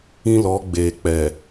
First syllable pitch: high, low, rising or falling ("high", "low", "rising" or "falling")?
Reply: high